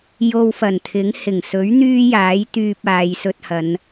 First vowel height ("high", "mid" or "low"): mid